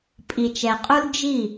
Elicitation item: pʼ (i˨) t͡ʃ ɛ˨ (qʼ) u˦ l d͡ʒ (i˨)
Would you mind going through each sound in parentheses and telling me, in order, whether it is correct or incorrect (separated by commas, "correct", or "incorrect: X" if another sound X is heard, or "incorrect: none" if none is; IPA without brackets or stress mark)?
correct, correct, incorrect: i˦˨